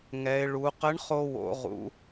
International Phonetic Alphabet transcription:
ŋ ɛ˩˧ ɪ̯ ɭ u˩˧ q ə˧˥ ɳ χ o˧ w o̰˩˧ ʁ ṵ˩˧

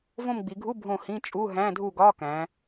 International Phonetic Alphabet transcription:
v õ˦˨ m ɡ͡b i˩˧ ɡʱ u˧˥˧ bʱ õ˦˨ h ĩ˧˥˧ t͡ʃʼ u˧˥˧ ɦ æ̃˧˥˧ dʱ u˦˨ ɡ ɒ˧˥˧ k æ̃˩˧

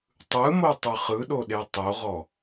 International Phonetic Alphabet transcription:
tˤ ɯ m o tˤ ɯ χ ɯ ɗ o ɗ e tˤ o ʁ ɔ

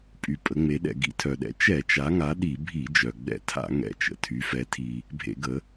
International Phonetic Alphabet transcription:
pʼ y˩ pʼ ə˩˧ ŋ͡m e˩˧ ɗ ɛ̰˩ ɡ ḭ˩˧ tʰ œ˩ ɗ ɛ̰˩˧ t͡ʃ ɛ˧˩˧ t͡ʃ a˩˧ ŋ a˩˧ ɗ i˧˩˧ bʱ i˧˩˧ d͡ʒ œ˩ ɡ͡b ɛ̰˧˩˧ tʰ a̰˧˩˧ ŋ ɛ̰˩ t͡ʃ ə̰˩ tʰ y˩˧ f ɛ˩˧ tʰ i˩ | bʱ ḛ˧˩˧ ɡ ə˩˧

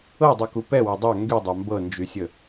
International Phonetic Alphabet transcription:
ɤ dˤ u k u p ɛ w a dˤ a ŋ ɡ y dˤ a m b ɤ n d͡ʒ y sʲ ə

